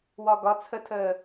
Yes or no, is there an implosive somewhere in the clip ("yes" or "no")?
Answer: no